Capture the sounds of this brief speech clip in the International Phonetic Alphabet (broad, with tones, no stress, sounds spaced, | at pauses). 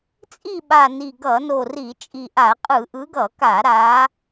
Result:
t͡sʼ i˦˨ ɓ a˨˩ n i˨˩ ɡ ʌ˧˩˧ n o˨˩ r i˧˩˧ t͡ʃʼ i˨˩ ʔ a˧˩˧ qʼ ɯ˧˩˧ ʔ ɯ˨˦ ɡ ʌ˧˩˧ k a˧˩˧ ɾ a˨˦